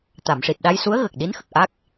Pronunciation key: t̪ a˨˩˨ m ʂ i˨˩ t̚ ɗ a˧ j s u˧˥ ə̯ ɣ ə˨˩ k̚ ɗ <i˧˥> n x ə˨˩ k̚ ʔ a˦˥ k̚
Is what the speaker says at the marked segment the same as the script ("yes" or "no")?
yes